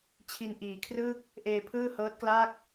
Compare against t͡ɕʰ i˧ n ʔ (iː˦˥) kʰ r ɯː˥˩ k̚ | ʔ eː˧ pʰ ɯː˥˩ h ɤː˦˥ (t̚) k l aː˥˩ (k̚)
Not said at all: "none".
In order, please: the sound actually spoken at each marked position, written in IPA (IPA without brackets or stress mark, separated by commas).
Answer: iː˨˩, t̚, k̚